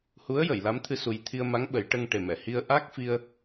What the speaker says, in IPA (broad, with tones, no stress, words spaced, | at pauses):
hu˧˥ə̯ jə˨˩˨jla˧˥mt̪ʰɨ˧ su˧j t̪ʰi˧ə̯ma˧˥ŋ ɓə˨˩˦j ʈə˧ŋʈe˨˩mɛ˨˩˨ hi˧ə̯ʔa˦˥k̚fi˧ə̯